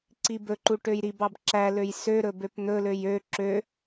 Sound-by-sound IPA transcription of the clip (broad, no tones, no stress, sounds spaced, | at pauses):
ǀ i b ɵ ǃ u ʈ ø j ɾ i b ɑ b ǁ æ l ø j s ø ɾ ɵ b ø p n̪ ɵ l ø j ø ǁ ø